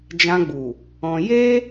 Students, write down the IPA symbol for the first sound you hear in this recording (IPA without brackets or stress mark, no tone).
d͡ʒ